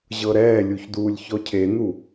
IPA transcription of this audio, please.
ʑ ɤ ɾ ɛː lʲ u ç d uː lʲ ç ɔ cʰ e n̪ u

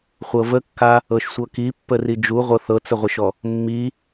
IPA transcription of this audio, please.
χʷ ɤ v ə kː a | ɤ ʃ sʷ ɤ k i pː ə r i d͡ʒ u ʁʷ ɤ θ ɤ t͡s ə ʁʷ ə ʃ ɔ | mː i

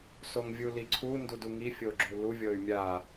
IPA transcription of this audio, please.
s o ŋ vʲ u l i ǀʰ u n d u d u ŋ i fʲ o ɡ͡ǁ u l u vʲ ɤ y̯ mʲ a

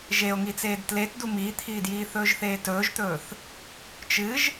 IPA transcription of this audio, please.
ʒ e o̯ ŋ i t͡s eː d t l e t d u m iː t̪ʰ iː d j iː θ ɵː ʒ θ eː t ɵː ʒ t̪ ɵː θ | t͡ʃ ɨ ʒ

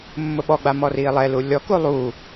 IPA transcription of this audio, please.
mː ʊ ɓ ɔ ɡ͡b a m ɔ r iː lˠ ɛ l u lʲ ɔ k u lˠ u

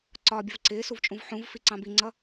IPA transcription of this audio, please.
ǀ ɒː bʲ ʌ v ǀ ɪː s u v t͡ʃʼ ũ v ħ ũ v f i ǀ ɑ̃ b i ŋ͡ǀ ʌ

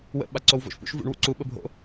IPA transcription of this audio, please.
w ə̰ ɓ a ǀ o w v o̰ ʃ p ṵ ʃ v ṵ ɳ w ṵ ǀ u ɓ ə bʱ o̰

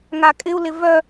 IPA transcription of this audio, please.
ŋ a kʼ ɪ u̯ l ɪ v œ

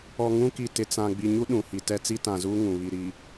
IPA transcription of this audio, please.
ɔ˨ ŋ ũ˦ k i˨ t ɪ˨ t͡s ã˨ ɡ͡b i˨ ɲ u˦ ɗ ũ˨ h i˨ t ɛ˦ t͡s i˦ t ã˨ z uː˦ ŋ ũ˨ β i˨ ɾ i˨

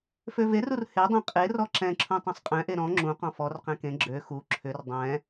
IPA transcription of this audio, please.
f ø v e r u r h e dˤ ɛ̃ qʼ e r ɔ ǁ ɛ̃ ǁʰ ũ tˤ ɛ̃ sˤ qʼ ɛ̃ ʔ e ɾ ɔ̃ ŋ͡ǁ ũ q ɔ̃ f ɔ r q ɛ̃ k ẽ ɡ͡ǁ ø x u ǁʰ ʏ r dˤ ɛ̃

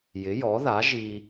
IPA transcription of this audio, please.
j ɪ˩˥ j ɔ˩˥ ð a˩˥ ʒ i˧

